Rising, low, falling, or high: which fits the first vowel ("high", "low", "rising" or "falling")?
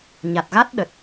low